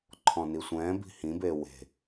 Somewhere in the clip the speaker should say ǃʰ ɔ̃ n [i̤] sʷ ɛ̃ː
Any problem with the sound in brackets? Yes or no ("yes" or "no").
yes